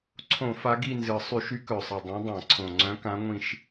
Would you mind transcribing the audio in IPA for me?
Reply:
ǀʰ õ˧˩˧ f a˨˦ ɡ i˦˨ n z ɨ˨˩ sˤ y˧˩˧ ʃ y˨˦ k œ˨˩ sˤ ɨ˨˩ dˤ õ˨˦ dˤ ã˧˩˧ ǀʰ õ˨˩ ŋ͡ǀ œ̃˨˦ k ã˨˦ ŋʷ ĩ˦˨ ʃ

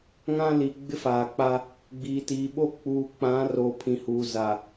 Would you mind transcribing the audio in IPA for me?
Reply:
ŋ ã˦ l i˨ ɡ͡b ɪ˦ f aː˨ k͡p a˦ | ɡ͡b iː˨ t iː˨ ɓ o˦ k͡p uː˨ k͡p ã˨˦ r o˨ pʰ ĩ˨ h uː˨ z a˨

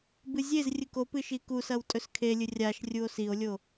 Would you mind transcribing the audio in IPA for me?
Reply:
b ɨ zʲ e z rʲ ɨ k o p ɨ ʃ i k u s ɐ w tʼ ɵ s kʰ e lʲ ɨ rʲ a ʃ rʲ u o̯ s i o̯ lʲ o

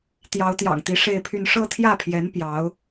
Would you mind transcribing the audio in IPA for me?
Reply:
t̪ j ɑ˧˥ ʊ̯ t̪ j ɑ̰˨˩ ŋ t̪ i˧˥ ʂ e˥˧ ɪ̯ pʰ y˥˧ n ʂ ɤ˥˧ t̪ʰ j ä˥˩ pʰ j ɛ˧˥ n p j ɑ˧˥ ʊ̯

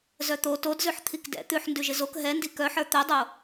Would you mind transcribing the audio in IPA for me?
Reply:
z œ t̪ o t o d z ʉ ħ t̪ʰ i k d ɛ̰ t̪ ʉ ħ n d ʉ ʒ ɪ z o k ɦ ɛ n d i k œ ħ ə˞ t̪ œ dˤ o

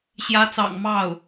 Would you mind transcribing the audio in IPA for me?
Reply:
ɕ j ä˧˥ t͡s ɑ̰˨˩ ŋ m ɑ˥˩ ʊ̯

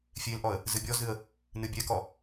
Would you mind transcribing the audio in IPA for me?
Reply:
fʲ e l ʔ ɔ ə̯ | z ɨ bʲ ɔ z ɨ ə̯ | n ɨ bʲ ɛ k ɔ

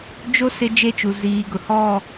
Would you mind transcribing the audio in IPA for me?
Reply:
d͡ʒ o˦ s ɪ˦ d͡ʒ e˦ t͡ʃ u˨ z iː˨ ɡ ʊ˨ h ɔ˦˨

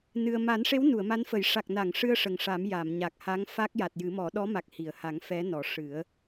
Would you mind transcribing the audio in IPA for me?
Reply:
n ɨ˧ ə̯ m a˨˩˦ n ʂ e˧˥ w n u˨˩˨ ə̯ m a˧˥ n f ə˨˩˦ j ʂ a˨˩ k̚ n a˨˩˨ ŋ ʂ ɨ˧ ə̯ ʂ ə˨˩ ŋ ʂ a˨˩˦ m j a˨˩˨ m ɲ a˨˩ k̚ h a˧˥ ŋ f a˦˥ k̚ j a˨˩ t̚ j ɨ˨˩˦ m ɔ˨˩˦ ɗ ɔ˧˥ m a˨˩ k̚ h i˨˩˨ ə̯ h a˨˩˦ ŋ f ɛ˧˥ n ɔ˨˩˦ ʂ ɨ˨˩˦ ə̯

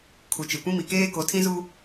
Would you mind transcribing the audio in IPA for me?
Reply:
kʰ u˨ t͡ʃ e˨ kʷ ĩ˦ m i˨ k eː˦ k o˨˦ tʰ ĩ˦ z u˦

